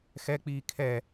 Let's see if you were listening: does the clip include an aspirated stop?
yes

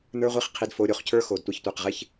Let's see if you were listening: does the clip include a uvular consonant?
yes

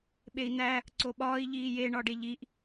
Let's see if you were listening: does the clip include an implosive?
yes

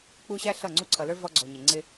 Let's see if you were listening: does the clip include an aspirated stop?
yes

